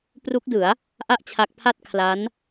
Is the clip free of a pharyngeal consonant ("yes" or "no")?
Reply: yes